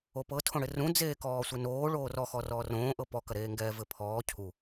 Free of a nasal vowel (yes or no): no